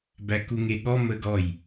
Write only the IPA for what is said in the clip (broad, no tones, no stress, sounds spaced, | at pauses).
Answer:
b æ k u ŋ e ɠ ɔ m ə ɡ ɔ j